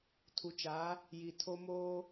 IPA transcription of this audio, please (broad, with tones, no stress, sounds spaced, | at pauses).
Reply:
tʰ u˨ t͡ʃ a˨˦ | j i˨ tʰ o˦ m oː˦